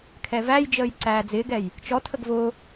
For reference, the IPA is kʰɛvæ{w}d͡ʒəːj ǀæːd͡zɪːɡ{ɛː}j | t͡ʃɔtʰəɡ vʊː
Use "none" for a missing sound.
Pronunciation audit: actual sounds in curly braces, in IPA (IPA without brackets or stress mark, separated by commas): j, ɛ